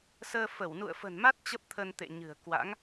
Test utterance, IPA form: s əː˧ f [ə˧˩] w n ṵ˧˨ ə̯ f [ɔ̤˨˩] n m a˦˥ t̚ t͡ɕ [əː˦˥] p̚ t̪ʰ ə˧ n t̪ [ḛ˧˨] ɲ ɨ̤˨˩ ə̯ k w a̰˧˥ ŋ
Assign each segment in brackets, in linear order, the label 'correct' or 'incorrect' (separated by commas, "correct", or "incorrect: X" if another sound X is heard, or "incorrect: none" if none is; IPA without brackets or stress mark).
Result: correct, incorrect: ə̤˨˩, incorrect: ə˦˥, correct